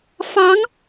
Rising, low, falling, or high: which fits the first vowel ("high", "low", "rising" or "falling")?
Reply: rising